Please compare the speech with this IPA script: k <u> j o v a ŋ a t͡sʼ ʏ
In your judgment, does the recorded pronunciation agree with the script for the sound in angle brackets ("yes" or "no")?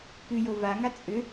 no